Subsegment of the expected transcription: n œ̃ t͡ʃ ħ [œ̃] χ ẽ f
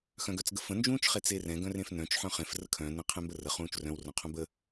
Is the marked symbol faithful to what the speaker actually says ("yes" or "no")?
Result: yes